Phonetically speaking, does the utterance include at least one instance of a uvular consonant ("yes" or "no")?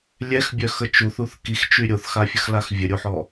no